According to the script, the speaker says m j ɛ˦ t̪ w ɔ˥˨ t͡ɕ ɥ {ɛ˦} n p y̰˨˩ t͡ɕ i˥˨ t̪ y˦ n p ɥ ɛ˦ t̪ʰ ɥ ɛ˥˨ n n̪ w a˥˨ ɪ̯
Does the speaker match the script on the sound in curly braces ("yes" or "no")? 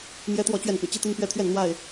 no